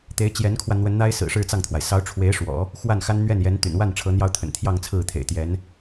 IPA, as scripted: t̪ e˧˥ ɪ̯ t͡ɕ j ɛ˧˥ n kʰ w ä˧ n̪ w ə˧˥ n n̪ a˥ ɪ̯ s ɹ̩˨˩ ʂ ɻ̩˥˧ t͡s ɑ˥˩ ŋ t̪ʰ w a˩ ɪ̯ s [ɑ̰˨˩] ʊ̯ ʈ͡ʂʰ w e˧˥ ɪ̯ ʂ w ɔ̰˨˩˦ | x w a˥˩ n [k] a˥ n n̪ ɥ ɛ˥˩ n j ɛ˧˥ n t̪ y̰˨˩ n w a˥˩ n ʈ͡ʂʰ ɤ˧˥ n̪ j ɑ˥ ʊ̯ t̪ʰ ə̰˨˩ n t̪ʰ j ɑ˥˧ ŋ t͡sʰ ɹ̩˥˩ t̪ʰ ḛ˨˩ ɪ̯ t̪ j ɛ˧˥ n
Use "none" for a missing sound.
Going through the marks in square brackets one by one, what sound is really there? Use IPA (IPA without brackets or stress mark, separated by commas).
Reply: ɑ˧˥, x